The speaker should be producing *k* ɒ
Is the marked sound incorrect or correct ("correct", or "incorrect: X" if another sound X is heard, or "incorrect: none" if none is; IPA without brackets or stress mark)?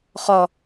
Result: incorrect: χ